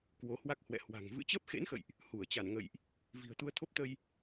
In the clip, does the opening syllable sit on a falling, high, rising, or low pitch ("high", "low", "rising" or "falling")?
rising